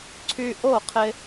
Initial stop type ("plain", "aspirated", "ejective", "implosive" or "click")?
click